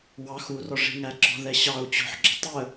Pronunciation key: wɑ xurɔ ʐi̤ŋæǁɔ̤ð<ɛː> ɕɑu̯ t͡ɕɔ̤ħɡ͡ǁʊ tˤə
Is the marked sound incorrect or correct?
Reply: incorrect: ɛ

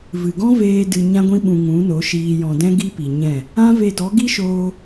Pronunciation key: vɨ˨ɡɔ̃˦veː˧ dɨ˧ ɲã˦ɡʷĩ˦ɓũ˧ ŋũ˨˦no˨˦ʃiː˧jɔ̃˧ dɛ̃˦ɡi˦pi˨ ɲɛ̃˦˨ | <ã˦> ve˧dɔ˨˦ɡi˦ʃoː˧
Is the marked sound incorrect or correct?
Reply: correct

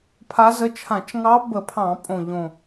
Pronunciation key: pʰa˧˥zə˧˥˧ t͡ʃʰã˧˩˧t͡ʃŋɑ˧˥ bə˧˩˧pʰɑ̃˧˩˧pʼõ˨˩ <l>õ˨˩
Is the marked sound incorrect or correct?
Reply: incorrect: ʎ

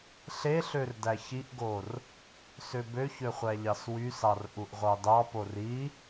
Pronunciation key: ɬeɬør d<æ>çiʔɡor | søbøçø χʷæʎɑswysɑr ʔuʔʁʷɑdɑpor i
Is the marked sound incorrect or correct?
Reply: correct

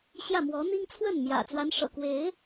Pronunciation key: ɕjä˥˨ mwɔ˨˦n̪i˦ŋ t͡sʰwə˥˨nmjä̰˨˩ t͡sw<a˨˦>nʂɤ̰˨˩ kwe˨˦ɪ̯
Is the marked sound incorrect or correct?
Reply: correct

